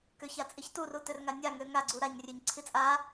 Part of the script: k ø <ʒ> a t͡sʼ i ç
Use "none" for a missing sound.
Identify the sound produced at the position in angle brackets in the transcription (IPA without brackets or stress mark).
ç